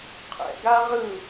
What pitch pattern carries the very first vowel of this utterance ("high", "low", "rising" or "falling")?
low